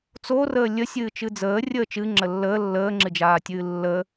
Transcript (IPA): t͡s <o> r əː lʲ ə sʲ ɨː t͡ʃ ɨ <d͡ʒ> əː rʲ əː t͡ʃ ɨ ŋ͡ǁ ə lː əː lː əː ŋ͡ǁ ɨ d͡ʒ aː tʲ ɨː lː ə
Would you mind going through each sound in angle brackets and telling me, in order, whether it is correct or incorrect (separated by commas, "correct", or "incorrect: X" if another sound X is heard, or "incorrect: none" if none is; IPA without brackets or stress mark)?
correct, incorrect: d͡z